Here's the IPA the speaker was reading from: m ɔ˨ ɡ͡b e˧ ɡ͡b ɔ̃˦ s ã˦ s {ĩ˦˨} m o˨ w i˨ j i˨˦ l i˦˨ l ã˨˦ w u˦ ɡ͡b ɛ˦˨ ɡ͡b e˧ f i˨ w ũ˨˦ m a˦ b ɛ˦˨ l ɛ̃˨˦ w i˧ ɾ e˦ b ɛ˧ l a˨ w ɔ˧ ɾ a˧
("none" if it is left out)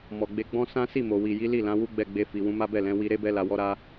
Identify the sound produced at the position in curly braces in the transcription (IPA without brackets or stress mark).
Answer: i˦˨